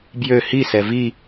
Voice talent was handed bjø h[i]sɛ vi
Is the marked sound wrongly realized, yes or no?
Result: no